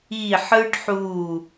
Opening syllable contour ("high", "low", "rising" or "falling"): falling